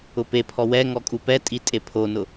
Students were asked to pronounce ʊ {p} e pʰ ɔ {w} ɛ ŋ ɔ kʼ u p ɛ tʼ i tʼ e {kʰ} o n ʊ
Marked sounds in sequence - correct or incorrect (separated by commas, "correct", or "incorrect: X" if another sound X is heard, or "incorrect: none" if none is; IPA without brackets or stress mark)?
correct, correct, incorrect: pʰ